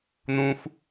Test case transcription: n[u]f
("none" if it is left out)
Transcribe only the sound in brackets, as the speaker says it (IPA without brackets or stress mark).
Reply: ũ